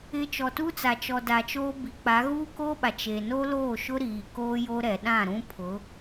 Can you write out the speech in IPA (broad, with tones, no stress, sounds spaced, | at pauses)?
ɪ˨ t͡ʃ ɔ˨ t u˦ t͡s a˨ t͡ʃ ɔ˨ d a˨ t͡ʃ oː˦ b i˨ k͡p a˨˦ ɣ uː˦ k oː˦ ɓ a˨ t͡ʃ e˨ n o˦ l oː˦˨ ʃ ʊ˦ ɾ iː˨ k oː˦ j o˦ ɾ ɛ˨ ɗ ã˦˨ ɾ ũ˦ pʰ ʊ˨˦